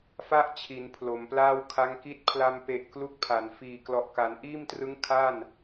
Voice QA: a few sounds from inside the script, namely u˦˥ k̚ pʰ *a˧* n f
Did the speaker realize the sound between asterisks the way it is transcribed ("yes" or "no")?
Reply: no